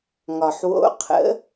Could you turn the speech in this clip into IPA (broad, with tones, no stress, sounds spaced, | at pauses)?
ŋ ɒ˩ ħ w o̰˧˥ qʰ ə̰˧˥